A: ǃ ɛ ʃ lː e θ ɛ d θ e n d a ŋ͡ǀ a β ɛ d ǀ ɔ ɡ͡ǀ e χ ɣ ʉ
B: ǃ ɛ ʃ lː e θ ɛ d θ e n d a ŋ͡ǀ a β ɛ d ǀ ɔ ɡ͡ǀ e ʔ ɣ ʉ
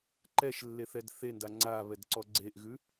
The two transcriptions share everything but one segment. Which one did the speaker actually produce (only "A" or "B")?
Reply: B